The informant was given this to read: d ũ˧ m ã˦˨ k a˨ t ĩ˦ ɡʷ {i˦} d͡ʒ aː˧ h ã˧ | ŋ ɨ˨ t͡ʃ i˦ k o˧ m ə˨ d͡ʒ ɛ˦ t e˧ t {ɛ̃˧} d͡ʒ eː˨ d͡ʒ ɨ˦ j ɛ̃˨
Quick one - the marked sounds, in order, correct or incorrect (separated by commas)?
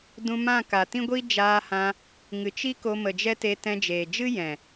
correct, correct